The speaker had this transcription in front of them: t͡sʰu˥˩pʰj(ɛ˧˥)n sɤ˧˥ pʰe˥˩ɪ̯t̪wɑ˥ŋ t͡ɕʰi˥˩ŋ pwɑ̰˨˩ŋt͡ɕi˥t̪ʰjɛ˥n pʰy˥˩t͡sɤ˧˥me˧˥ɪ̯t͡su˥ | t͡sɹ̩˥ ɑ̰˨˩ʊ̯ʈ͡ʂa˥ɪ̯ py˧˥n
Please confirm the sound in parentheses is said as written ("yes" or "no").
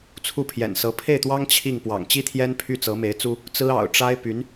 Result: no